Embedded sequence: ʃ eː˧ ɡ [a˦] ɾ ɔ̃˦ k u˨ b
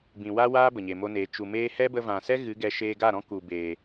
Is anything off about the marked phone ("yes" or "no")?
yes